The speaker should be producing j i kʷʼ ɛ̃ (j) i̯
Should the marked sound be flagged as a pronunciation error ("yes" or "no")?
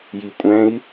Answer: yes